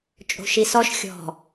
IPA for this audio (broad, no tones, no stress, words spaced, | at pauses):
t͡ʃʼo̤ʃisɔʃ xʲɔ̤